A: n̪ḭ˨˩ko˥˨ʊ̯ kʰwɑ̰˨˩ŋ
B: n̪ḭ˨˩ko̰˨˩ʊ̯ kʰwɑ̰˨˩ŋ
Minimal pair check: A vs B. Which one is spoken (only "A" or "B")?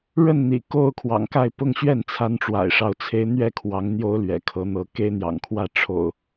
A